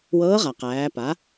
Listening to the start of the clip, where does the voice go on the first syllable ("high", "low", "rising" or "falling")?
rising